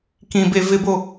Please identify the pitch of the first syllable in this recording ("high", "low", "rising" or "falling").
low